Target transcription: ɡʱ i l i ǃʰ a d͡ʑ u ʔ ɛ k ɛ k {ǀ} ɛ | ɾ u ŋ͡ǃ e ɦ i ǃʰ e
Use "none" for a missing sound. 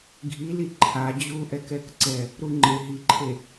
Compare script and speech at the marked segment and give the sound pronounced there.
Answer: ǀ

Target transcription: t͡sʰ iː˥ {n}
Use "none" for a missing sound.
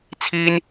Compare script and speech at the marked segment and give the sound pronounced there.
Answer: n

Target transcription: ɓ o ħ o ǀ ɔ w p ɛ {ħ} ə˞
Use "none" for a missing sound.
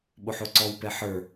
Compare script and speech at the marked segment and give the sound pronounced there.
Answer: ħ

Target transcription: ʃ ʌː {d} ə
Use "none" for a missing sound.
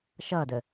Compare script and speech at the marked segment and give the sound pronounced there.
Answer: d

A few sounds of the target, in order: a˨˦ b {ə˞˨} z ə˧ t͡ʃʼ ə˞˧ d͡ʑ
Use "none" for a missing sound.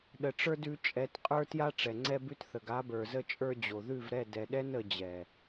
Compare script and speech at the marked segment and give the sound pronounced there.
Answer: ə˞˨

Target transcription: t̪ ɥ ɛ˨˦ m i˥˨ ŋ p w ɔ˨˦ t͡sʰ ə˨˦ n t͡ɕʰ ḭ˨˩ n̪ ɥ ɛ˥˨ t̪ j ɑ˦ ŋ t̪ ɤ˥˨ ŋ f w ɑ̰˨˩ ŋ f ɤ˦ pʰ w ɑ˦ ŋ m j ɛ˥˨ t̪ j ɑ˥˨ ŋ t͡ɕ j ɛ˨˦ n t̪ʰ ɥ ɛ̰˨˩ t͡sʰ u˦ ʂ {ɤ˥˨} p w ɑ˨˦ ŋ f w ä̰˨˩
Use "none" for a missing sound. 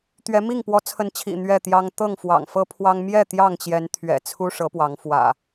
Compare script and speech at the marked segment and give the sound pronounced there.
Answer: ɤ˨˦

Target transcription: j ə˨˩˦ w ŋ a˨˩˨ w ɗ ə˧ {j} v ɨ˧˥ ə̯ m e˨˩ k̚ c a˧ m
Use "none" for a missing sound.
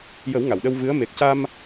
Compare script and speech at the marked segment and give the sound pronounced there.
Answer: w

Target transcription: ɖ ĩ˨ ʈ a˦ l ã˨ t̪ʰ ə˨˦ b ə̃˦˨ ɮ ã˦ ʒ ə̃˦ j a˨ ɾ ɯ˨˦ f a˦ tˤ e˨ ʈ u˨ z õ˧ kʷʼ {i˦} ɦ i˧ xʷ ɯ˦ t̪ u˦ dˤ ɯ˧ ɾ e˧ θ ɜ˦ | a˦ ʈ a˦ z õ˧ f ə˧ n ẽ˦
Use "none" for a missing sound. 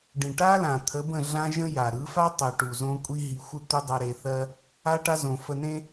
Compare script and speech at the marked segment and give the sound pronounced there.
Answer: i˦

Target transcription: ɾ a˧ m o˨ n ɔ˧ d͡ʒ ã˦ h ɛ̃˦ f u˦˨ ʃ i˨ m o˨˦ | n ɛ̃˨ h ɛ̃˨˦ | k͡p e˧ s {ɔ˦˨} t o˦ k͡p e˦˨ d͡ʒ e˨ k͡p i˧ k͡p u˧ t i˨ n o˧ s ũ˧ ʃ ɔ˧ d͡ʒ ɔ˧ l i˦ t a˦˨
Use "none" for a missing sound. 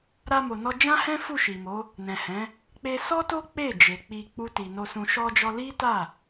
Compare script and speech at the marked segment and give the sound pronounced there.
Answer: ɔ˦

